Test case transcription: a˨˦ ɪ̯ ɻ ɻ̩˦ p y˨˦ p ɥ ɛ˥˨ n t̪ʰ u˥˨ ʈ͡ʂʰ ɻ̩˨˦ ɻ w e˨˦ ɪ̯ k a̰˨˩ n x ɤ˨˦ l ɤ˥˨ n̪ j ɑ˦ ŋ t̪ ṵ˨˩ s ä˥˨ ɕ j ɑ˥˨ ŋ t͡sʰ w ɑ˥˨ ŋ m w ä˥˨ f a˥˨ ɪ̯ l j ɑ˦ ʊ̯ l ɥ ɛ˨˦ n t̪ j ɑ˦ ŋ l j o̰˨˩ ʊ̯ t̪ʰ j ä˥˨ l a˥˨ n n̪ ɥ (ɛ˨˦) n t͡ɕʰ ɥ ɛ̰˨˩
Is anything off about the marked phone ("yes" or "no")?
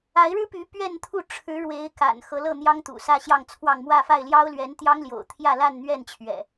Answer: yes